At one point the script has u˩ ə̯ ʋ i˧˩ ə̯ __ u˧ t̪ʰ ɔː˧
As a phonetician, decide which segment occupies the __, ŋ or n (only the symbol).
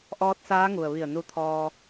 n